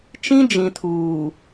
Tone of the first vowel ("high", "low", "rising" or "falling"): high